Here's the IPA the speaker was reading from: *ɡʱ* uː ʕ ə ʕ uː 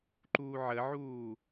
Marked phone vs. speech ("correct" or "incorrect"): incorrect